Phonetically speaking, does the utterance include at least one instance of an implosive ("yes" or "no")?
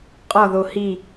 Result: no